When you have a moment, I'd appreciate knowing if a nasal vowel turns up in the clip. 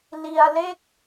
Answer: no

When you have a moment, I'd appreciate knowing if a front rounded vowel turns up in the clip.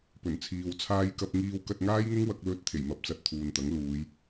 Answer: no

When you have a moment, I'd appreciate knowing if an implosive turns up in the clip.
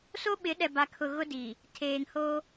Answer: yes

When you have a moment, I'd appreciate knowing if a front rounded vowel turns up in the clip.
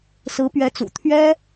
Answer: no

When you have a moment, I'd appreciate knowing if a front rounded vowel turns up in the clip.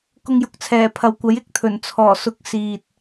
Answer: no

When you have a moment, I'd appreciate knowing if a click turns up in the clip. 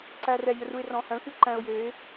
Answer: yes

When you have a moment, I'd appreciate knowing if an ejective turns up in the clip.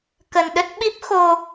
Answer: no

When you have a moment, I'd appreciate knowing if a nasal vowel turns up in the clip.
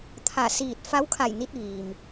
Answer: no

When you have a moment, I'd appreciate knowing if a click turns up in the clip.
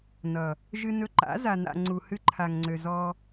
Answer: yes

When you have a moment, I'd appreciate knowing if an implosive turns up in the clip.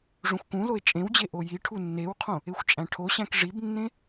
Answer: no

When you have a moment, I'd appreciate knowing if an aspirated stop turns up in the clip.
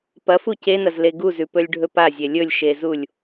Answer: no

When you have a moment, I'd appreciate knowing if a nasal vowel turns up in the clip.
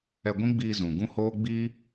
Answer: yes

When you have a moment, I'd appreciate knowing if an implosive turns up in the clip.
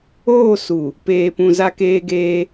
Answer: no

